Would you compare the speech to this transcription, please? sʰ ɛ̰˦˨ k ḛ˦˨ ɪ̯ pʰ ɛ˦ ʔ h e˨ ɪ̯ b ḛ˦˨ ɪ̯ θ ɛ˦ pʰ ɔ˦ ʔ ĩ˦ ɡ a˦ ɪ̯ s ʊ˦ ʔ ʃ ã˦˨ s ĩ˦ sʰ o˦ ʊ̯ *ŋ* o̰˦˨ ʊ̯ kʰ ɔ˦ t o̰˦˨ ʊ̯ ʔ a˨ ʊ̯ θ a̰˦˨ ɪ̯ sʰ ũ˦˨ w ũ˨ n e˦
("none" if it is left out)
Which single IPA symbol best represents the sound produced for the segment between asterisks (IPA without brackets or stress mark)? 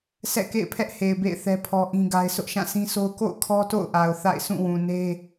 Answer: k